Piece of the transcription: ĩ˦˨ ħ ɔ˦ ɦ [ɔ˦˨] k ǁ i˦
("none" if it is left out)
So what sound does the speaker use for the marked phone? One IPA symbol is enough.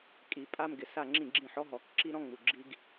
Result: ɔ˨˩˦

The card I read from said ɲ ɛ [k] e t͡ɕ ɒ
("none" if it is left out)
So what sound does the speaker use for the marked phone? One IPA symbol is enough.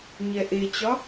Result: ʔ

